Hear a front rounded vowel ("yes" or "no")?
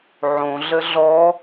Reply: no